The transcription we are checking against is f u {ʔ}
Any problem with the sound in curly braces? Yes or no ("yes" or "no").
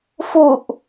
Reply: no